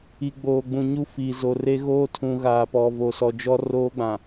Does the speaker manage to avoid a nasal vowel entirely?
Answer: no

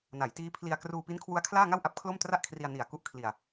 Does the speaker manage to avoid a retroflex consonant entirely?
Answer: yes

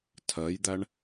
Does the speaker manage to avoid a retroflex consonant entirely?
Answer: no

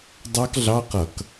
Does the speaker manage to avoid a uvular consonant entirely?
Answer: no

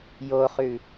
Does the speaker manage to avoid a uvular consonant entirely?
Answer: no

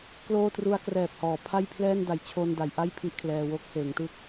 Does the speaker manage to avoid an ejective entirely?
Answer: yes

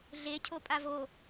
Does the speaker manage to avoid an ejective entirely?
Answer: no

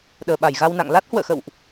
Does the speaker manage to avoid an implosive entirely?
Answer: no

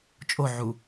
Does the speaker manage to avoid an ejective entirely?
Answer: no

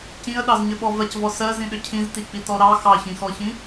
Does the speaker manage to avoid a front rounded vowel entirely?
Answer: no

